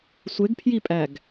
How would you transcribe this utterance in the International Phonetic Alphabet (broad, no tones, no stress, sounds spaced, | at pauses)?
sʷ e ɡ pʰ j i pʼ æ ɡ